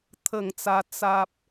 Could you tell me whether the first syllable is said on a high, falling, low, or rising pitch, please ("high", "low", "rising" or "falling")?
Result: falling